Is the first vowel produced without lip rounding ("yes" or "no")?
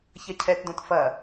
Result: yes